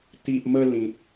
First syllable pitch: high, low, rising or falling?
low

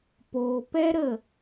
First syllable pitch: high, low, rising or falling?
low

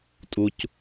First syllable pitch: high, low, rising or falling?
low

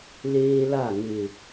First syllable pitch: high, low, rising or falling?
high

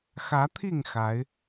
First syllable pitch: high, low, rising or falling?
rising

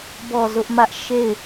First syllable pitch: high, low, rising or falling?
falling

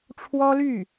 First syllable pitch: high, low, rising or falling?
high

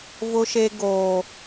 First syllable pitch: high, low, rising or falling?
high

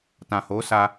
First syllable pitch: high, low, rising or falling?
low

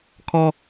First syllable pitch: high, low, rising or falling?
high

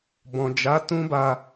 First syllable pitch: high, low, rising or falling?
low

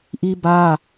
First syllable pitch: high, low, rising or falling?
high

